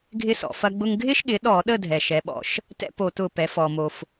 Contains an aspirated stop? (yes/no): no